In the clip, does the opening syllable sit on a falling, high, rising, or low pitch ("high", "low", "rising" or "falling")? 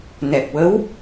low